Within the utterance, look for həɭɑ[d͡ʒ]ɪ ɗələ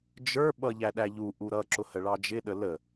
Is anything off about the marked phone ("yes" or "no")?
no